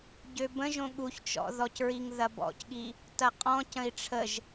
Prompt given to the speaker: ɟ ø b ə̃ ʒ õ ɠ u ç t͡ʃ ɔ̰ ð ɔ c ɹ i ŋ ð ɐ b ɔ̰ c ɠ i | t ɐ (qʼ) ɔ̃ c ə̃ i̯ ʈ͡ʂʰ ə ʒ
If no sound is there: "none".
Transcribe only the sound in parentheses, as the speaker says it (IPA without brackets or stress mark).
qʼ